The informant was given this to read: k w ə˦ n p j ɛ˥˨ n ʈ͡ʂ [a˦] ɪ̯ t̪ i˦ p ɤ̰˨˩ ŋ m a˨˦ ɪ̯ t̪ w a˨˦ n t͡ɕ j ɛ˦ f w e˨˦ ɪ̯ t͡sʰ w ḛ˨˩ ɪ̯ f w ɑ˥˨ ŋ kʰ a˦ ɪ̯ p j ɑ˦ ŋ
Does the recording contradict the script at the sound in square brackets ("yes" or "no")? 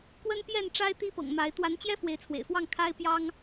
no